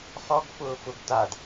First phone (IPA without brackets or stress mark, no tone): χ